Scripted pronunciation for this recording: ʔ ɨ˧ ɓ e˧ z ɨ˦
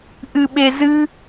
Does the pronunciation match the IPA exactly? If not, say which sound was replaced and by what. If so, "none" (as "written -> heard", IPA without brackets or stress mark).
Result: none